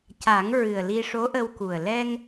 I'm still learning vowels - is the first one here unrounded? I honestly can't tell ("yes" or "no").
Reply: yes